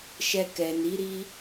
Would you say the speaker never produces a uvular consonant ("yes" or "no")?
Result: yes